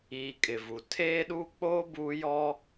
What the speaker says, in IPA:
iː˨ kʼ ɪ˨ v u˨ tʰ eː˦ ɗ uː˦ k͡p oː˦ b uː˦ j ɔ˦

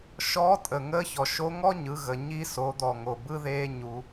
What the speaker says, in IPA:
ʃ ɔ˧˥ tʼ ə˩ ŋ əː˧˥ ç ɔ˩ ʃ o˧˥ ŋ ɔ˥ ɲ ɯ˩˧ ɣ ə˩ ɲ i˧ s o˩˧ d̪ ɔ˩ ŋ o˩ b ɯ˥ ð eː˥ ɲ u˩˧

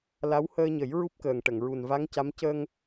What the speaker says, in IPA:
l a˧˥ w h əː˧ ɲ ə˨˩˦ j ɹ u˦˥ p̚ k əː˨˩ ŋ ʈ ə˨˩˨ ŋ ɹ u˨˩ n v a˧˥ ŋ c a˧˥ m c ə˧ ŋ

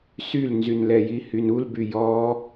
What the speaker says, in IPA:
s y l n z y n l ɛ j i h y n u l b y j ɔ

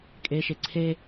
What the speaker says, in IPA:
kʼ e ʃ e ǀʰ e

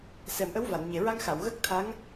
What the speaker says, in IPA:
s ɛ˨˩˨ m ʔ ə˧˥ w v a˨˩˨ n ɲ e˨˩ ɹ a˧ ŋ x a˨˩˨ w ɣ ə˦˥ k̚ t̪ʰ a˧˥ ŋ

